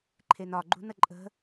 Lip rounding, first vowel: unrounded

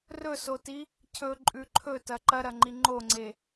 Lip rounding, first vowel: rounded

